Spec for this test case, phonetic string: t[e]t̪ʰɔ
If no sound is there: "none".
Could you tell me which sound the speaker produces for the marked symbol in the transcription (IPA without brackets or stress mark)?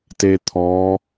e